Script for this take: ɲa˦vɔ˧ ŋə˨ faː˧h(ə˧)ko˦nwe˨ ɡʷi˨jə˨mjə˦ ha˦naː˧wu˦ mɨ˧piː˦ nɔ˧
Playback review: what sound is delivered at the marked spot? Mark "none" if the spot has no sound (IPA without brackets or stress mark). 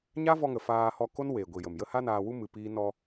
ɔ˧